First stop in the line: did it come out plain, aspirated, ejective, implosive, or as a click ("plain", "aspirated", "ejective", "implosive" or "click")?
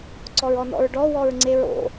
click